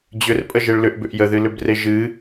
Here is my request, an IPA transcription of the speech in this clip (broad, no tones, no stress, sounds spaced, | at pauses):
d͡ʑ ʏ r pʼ ə ʒ e ɭ l ʏ ʔ b ʏ ʔ j ə ð ɨ l ʏ b r e ʒ ɨ